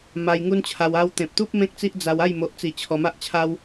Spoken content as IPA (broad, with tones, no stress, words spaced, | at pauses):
ma˧jŋu˦nt͡ɕʰa˧w a˧wt̪ẽ˨p̚t̪u˦p̚ mẽ˦k̚t͡si˦ʔd͡za˧w a˥˧j mo˨ʔt͡si˨˩ t͡ɕʰɔ˧ma˦ʔt͡ɕʰa˦w